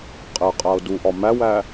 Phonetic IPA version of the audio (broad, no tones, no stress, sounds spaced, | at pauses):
qʼ e qʼ æ o̯ d u ʔ ɒ m æ w æ